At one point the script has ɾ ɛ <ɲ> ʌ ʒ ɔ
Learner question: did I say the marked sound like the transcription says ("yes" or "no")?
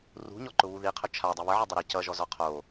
no